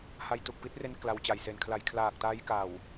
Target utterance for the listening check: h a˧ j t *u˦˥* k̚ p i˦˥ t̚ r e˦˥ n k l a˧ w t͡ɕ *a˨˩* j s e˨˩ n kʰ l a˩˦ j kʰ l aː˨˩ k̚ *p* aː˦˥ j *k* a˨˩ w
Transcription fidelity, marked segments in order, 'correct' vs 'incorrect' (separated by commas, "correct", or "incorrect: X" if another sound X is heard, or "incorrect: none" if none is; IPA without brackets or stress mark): incorrect: u˨˩, correct, incorrect: t, correct